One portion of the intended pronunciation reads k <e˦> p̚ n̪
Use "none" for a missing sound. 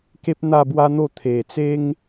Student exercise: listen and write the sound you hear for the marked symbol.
e˦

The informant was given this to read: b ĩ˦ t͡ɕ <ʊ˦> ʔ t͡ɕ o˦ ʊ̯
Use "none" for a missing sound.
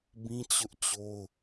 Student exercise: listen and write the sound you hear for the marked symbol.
ʊ˦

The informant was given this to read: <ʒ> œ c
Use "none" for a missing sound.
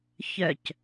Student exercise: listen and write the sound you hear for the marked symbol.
ç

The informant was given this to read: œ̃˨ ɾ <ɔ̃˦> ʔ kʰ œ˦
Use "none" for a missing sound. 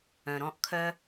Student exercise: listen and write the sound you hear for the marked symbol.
ɔ̃˦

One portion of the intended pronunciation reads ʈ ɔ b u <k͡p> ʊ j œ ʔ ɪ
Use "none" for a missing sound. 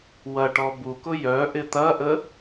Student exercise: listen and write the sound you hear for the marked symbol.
k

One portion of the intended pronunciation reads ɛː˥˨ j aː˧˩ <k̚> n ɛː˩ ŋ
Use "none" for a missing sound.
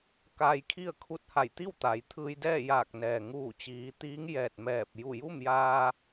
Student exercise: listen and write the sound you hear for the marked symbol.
k̚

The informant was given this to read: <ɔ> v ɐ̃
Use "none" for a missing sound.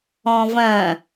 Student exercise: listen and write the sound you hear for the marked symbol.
ɔ̃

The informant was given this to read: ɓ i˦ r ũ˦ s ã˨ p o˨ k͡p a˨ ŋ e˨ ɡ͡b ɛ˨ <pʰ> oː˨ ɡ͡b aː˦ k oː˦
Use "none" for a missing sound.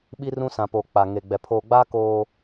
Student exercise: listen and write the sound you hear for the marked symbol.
pʰ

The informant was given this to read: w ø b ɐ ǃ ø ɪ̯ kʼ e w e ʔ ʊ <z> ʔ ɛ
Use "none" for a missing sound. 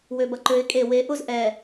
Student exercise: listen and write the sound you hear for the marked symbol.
z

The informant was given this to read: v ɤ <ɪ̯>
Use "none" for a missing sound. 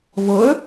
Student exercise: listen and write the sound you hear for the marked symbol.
ə̯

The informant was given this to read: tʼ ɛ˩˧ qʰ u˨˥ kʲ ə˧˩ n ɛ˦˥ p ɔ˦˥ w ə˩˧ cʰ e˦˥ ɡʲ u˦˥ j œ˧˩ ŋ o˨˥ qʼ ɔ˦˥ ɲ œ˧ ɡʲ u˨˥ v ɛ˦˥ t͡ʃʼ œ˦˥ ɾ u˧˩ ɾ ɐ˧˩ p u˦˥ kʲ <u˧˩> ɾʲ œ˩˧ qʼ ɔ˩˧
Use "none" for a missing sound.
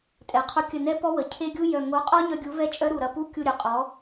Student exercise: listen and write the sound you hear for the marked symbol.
u˧˩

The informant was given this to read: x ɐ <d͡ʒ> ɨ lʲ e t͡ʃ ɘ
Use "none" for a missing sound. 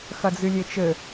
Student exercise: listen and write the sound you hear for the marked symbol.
d͡z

